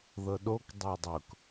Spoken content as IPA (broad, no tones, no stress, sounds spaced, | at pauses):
ð ɤ ɗ o k dˤ ʊː dˤ ʊ k